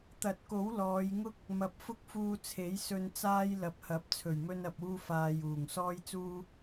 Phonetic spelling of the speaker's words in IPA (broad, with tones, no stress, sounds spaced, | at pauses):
t̪ ɐ˨˥ t̚ k o˨˥ w l ɔː˨˧ j ŋ ʊ˥ k̚ | m ɐ˨ p̚ f ʊ˥ k̚ f uː˧ t͡sʰ e˨˥ j s ɵ˧ n t͡s aː˥ j l ɐ˨˥ p̚ h ɐ˨˥ p̚ t͡sʰ ɵ˨˩ ɥ m ɵ˧ n ɐ˨ p̚ uː˧ f aː˨ j uː˨˩ ŋ s ɔː˥ j t͡s uː˥